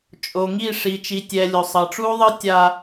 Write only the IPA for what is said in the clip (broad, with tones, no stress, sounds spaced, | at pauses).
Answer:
t͡ʃʼ o˨ ŋ i˦˨ ʂ i˨ t͡ʃ i˨ tʲ ɛ˨ lʲ o˨ sˤ ʌ˨ ʈ͡ʂ u˦ ðˤ ɯ˦ tʲ a˦